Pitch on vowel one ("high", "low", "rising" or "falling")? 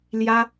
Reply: high